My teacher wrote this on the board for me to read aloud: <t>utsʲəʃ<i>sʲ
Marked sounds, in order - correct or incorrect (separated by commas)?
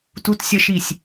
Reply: correct, correct